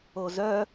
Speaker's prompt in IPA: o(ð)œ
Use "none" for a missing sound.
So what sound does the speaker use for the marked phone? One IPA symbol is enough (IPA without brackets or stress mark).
z